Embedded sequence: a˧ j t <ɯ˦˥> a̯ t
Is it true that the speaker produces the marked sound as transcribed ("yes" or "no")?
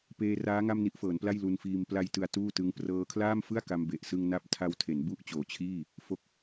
no